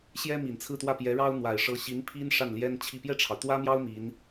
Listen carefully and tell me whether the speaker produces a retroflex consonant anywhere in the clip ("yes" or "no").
yes